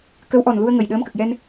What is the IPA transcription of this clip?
k ə˧˥ w ʔ ɔ˨˩ n l u˧ ə̯ ŋ ə˨˩ j ɗ əː˧˥ m k ə˨˩ k̚ j ɛ˧ n

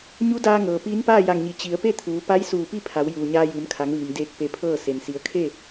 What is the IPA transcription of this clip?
ɲ u˧˥ d aː˧ ŋ ɤː˩ p iː˧˥ n p aː˥˨ j a˧˩ ŋ ɲ i˩˧ t͡ɕ i˩˧ ə̯ p e˥˨ t̪ʰ uː˩˧ p a˧˥ j s uː˧˩ p i˥˨ pʰ a˩˧ w j uː˩ ɲ aː˧ j ɯː˩˧ m kʰ a˩˧ ŋ ʋ iː˩ m d eː˧˩ k̚ p e˧ pʰ ɤː˥˨ s e˩ n s i˩˧ ə̯ kʰ e˥˨

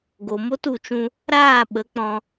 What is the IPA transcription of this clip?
ɡ o˨ m o˦ t u˨ t͡ʃ ũ˧ | ɾ aː˦˨ ɓ ə˨˦ k͡p ɔ̃˧

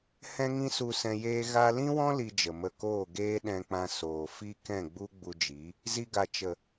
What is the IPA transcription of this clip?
h ɛ̃˦ ŋ ĩ˦ s u˧ s ɛ̃˧ j eː˦ ɣ a˧ l ĩ˦ w ɔ̃˦ l i˦ d͡ʒ ə˨ m ə˦˨ k oː˦˨ ɡ eː˦ ɗ ɛ̃˧ k͡p ã˧ s oː˨ f i˦ k ɛ̃˦˨ ɡ͡b u˦ ɡ͡b u˧ d͡ʒ i˨˦ | z i˧ ɡ a˨ t͡ʃ ə˨

